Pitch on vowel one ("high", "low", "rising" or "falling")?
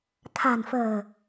low